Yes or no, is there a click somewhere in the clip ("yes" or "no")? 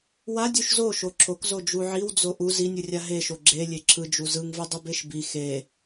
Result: yes